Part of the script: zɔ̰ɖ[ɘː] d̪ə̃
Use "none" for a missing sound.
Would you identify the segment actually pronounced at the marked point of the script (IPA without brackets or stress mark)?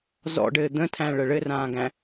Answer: ɘː